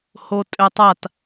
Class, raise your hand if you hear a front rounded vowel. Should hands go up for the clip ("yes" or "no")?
yes